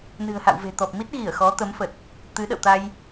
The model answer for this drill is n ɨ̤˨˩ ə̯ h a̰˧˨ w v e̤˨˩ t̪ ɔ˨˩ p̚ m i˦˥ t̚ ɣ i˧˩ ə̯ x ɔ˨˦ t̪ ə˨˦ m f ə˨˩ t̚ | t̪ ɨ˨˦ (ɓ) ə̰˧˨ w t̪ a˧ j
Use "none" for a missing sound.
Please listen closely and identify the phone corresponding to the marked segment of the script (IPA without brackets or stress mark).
ɗ